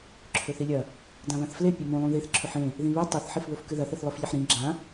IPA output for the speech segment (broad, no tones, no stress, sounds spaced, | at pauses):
ǁʰ ɵ θ i lʲ ɐ | d ã β ã θ f l e pʲ e m ũ lˠ ũ ð i θ ǁʰ ɵ ħ ẽ | ð ĩ β e tˤ e θ ħ i f β ɵ f k ɨ ð ɐ θ i θ lˠ ɵ f ʎ e ħ ɾ ĩ ɡ͡ǁ ã